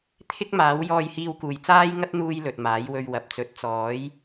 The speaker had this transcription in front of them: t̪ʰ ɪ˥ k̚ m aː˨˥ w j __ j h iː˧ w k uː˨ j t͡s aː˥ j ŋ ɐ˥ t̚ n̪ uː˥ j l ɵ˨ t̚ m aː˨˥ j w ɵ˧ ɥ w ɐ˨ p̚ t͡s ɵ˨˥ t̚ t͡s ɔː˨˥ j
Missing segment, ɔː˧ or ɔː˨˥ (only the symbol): ɔː˧